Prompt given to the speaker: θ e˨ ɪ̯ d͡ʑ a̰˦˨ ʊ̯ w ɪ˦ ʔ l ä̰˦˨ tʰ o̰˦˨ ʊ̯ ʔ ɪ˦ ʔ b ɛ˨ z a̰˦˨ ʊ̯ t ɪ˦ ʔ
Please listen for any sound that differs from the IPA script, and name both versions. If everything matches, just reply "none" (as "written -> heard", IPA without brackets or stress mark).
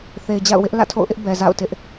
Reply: none